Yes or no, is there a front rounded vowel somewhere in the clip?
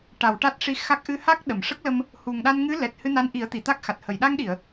no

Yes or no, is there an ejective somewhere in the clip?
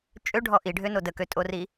yes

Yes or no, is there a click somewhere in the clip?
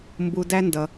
no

